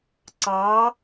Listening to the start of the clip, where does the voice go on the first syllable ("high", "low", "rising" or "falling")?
rising